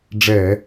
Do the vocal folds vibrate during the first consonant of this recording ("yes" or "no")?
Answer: yes